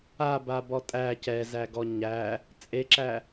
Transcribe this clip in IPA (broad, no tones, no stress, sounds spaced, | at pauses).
a b a b ɔ tʼ æ c ɛ z æ ɡ ɔ ɲ æ | t͡sʼ e ǁ æ